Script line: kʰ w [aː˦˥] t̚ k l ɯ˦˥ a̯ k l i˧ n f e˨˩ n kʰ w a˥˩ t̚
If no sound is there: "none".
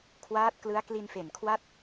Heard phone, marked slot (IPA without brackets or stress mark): aː˦˥